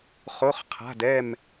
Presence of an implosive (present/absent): absent